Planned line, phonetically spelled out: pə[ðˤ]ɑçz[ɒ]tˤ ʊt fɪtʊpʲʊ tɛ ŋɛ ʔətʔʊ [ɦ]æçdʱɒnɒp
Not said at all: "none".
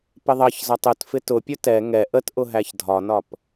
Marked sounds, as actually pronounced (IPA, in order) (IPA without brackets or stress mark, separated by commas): ðˤ, ɒ, ɦ